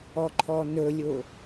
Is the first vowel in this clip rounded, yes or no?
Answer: yes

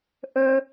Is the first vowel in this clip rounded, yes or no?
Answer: no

